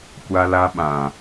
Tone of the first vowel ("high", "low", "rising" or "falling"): high